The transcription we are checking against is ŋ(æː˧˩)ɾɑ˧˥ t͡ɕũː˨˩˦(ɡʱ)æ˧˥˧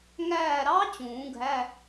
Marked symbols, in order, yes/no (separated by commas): yes, yes